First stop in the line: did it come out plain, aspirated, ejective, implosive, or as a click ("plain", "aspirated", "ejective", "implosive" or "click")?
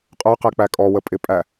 ejective